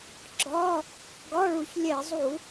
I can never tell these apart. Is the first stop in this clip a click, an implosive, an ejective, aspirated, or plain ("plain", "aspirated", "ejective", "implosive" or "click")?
click